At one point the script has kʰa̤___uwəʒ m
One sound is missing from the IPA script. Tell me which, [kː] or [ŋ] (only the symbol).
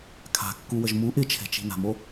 kː